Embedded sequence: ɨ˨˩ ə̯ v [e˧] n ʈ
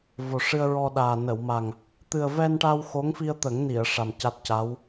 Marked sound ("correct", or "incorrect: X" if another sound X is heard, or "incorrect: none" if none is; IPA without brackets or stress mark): incorrect: ɛ˧